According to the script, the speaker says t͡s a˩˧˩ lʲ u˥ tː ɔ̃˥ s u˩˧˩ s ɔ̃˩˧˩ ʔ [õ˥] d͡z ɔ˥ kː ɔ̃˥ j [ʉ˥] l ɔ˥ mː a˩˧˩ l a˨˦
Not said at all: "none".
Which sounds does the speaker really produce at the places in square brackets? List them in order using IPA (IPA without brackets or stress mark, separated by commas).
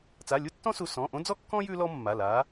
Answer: õ˥, ʉ˥